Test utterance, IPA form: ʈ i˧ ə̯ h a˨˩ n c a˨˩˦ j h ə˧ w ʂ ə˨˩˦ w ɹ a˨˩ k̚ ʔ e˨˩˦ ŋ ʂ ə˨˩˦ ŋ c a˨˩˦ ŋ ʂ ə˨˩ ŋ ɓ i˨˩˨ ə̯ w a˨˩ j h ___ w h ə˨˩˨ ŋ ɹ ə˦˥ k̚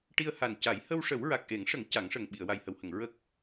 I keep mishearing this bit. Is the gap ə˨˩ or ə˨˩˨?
ə˨˩˨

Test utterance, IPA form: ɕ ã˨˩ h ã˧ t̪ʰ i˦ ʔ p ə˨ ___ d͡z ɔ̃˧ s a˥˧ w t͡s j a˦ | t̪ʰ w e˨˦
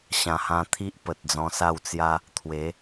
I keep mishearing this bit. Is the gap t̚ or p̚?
t̚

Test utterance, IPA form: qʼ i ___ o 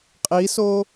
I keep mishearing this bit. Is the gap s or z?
s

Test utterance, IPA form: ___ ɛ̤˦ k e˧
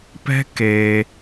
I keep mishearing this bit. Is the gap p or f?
p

